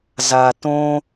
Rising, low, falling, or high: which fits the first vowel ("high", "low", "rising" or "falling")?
low